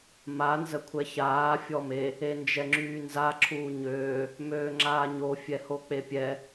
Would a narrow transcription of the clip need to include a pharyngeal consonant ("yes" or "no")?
no